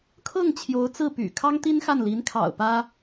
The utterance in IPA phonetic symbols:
kʰ ɤ˥˩ ŋ t͡ɕʰ j o˧˥ ʊ̯ t͡s ɹ̩˥˩ p y̰˨˩ kʰ ɑ˥ ŋ t̪ i˥ n x a˥˩ n l i˧˥ n kʰ ɑ̰˨˩ ʊ̯ p ä˥

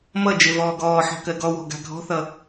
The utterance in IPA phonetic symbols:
m ʌ d͡ʒ e v ɔː ɡ ɔː ħ ɔ̤ k ɜ ɡ ɔ w ɔ̤ ɡ a̤ ɡʱ ɔ̤ θ ʌ

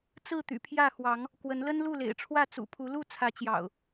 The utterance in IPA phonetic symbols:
t͡s ɹ̩˥˨ t̪ y̰˨˩ pʰ j ä˥˨ x w ɑ˨˦ ŋ | k w ə˨˦ n l ə˦ n l u˥˨ l ḛ˨˩ ɪ̯ ʈ͡ʂʰ w ä˥˨ t͡s ṵ˨˩ pʰ u˨˦ l u˥˨ t͡sʰ ä˨˦ t͡ɕ j ɑ̰˨˩ ʊ̯

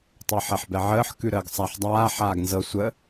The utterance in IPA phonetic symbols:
tˤ əː ħ ɛ ħ b ɛ ʕ əː ħ k ʉ ɾ əː ɡ sˤ a ħ dˤ aː ħ aː ɡ n z ɤ sʷ ə

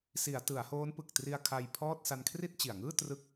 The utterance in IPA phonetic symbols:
s i˩˦ a̯ t ɯ˩˦ a̯ h oː˦˥ n p ɯ˨˩ k̚ t r i˧ a̯ kʰ a˧ j pʰ ɔː˥˩ t̚ s a˧ n kʰ r i˥˩ t̚ t͡ɕ i˨˩ a̯ ŋ ɯː˥˩ t r ɯ˦˥ k̚

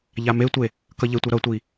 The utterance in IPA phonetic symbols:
ʎ a m e tʷ e | k ʌ ʎ e tʷ ʌ ɾ ʌ tʷ i

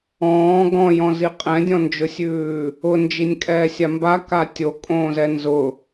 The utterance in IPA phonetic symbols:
ɔ̃ː ɡ ɔ̃ j ɔ̃ z i qʼ ɛ̃ dʲ ɔ̃ n d͡ʒ ʊ sʲ ʉː | ʊ n d͡ʒ i nʲ kʼ ɛː sʲ a m b a k a tʲ o kʼ õː z ɛ n z ʊ

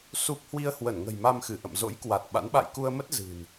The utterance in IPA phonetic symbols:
s u˦˥ p̚ h w i˧ ə̯ h w ə˧˩ n ŋ ə̤˨˩ j m a˧ m x ɨ˧˩ ʔ ə̰˧˨ m z o̰˧˥ j k w a˨˩ t̚ ɓ a̰˧˥ n ɓ a̰˧˨ j k u˧ ə̯ m ə˦˥ t̚ z ɨ̤˨˩ n

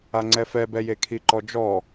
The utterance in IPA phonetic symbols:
a ŋ͡ǀ ɛ f ɛ b ɛ j e kʰ i ǃ ɔ d͡ʒ ɔ

